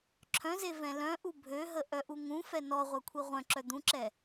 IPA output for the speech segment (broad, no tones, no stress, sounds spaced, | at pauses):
ǁʰ œ̃ z e v ɛ̃ l œ̃ ʔ u bʱ ø ɦ ə ʔ œ ʔ u ŋ ũ f ɛ n ɔ ʁʷ œ kʷʰ i ʁʷ œ̃ ǁ œ d̪ ũ ǁ ɛ